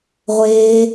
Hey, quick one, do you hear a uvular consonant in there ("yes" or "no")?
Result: yes